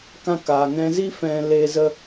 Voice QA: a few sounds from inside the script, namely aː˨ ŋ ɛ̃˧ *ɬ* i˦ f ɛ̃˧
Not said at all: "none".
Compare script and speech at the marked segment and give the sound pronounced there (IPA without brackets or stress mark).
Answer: z